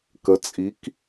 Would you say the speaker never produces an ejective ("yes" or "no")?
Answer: no